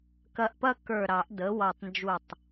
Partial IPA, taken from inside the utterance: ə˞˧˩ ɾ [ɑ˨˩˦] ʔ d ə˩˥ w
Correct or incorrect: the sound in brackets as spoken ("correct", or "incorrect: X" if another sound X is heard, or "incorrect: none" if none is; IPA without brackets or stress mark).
correct